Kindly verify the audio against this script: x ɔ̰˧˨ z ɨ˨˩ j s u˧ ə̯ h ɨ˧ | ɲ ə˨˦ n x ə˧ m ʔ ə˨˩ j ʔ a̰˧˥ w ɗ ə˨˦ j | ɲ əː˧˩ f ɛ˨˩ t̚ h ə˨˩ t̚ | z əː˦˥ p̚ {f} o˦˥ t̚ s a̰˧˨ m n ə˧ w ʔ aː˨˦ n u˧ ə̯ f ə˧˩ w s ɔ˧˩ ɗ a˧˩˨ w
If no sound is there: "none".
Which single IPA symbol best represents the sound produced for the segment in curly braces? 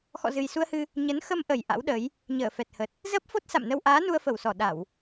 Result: f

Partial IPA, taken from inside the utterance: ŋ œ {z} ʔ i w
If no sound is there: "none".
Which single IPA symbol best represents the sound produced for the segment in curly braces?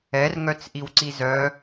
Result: t͡s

